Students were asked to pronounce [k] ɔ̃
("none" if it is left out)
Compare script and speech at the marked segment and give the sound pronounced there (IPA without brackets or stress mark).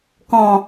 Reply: k